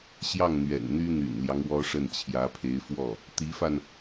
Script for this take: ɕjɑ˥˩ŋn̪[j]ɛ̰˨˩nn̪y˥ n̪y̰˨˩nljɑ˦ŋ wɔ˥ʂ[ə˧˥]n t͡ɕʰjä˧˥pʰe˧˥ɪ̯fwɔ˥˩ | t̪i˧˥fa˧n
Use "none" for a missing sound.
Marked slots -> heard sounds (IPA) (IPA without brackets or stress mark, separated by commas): ɥ, ə˥˩